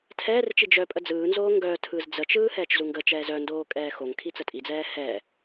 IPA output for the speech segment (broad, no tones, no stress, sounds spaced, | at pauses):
tʰ ɛː r t͡ʃ i d͡ʒ œ pʼ ə d͡z ɯː n z oː ŋ ɡ œ tʰ ɯ z d͡z ə t͡ʃ ɯː h ɛː t͡ʃ z u ŋ ɡ ə t͡ʃ ɛː z œ n d oː kʼ ɛː x o ŋ kʰ i t͡s ə tʼ i d͡z ɛː h ɛ